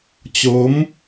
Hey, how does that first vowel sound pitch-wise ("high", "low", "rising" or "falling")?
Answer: rising